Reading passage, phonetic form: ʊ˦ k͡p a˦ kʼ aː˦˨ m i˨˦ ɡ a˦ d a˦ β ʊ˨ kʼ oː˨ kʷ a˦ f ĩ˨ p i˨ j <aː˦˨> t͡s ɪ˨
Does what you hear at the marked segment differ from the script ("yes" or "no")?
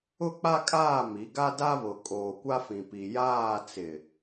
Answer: no